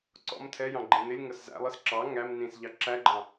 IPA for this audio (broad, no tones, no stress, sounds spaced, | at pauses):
ǀ ɔ̰ m tʰ ɛ j ɑ̃ ɡ͡ǃ ĩ n ɪ lʲ ŋ ʌ s z æ̰ lˠ ɪ s ǁ ɑ ŋ æ m n ĩ s ʎ ɑ ǁ æ ɡ͡ǃ ɑ̃